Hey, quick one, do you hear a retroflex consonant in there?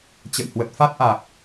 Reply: no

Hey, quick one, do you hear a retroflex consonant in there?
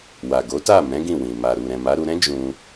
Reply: no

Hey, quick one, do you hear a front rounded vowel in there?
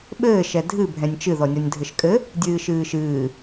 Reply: no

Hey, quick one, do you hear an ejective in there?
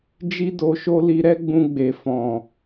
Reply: no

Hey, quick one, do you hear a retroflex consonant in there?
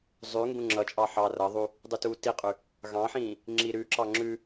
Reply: no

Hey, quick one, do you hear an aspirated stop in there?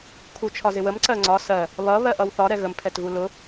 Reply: yes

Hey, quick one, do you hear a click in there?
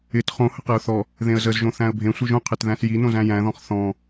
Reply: no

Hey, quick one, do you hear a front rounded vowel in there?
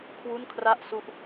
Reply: no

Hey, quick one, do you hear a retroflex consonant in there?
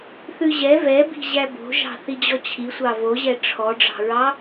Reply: yes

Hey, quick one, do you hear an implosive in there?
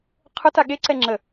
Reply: yes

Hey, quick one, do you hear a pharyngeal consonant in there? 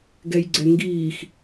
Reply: no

